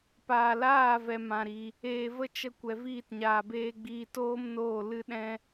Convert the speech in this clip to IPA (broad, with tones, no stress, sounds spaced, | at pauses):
p aː˨ l aː˦˨ v ɛ˨ m ã˨ ɾ i˨ | eː˨ v ə˦ t͡ʃ ə˧ kʷ ɛ˨ v iː˦˨ t ɲ aː˨ b eː˧ ɡ͡b iː˧ t oː˦ m n oː˦˨ l ɨ˧ ɗ ɛ̃˧